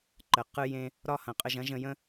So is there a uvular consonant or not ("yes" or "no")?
yes